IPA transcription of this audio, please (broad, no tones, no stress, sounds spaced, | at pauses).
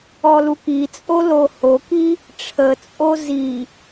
ɔ l u k i t͡sʼ o l o h o k i | ʈ͡ʂʰ ə t͡sʼ o z i